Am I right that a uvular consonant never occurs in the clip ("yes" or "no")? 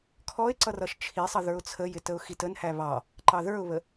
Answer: yes